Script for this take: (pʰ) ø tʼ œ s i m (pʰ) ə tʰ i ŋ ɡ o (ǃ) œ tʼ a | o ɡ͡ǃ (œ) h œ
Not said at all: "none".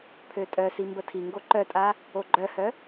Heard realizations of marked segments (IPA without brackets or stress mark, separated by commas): pʰ, b, ǃ, œ